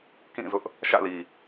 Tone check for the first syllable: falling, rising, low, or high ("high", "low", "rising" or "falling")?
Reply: falling